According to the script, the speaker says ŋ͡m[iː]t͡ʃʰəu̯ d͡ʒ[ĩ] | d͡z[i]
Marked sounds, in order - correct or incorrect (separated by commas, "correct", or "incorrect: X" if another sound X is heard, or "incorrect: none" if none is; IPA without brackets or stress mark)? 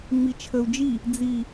incorrect: i, incorrect: i, correct